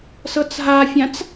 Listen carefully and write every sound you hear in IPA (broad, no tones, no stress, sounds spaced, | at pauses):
s ɤ t͡s ɦ a fʲ ã t͡s